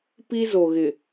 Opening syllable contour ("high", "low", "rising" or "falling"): high